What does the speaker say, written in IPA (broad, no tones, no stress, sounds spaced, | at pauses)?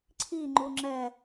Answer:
ǀʰ i ŋ͡ǃ u ŋ͡ǁ ɛ